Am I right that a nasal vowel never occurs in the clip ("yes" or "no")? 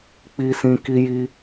no